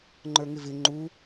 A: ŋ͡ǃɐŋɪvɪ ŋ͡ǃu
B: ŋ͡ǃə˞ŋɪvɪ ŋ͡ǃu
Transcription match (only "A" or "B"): B